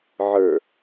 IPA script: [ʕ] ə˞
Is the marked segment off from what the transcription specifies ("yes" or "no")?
no